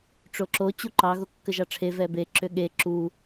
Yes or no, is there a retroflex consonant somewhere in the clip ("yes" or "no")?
yes